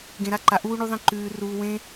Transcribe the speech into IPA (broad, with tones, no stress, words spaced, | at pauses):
ɡẽ˧ɾa˦ǃa˧ ʔuː˦ɳu˦ðˤẽ˦ ǃʉː˧ ruː˧wẽ˦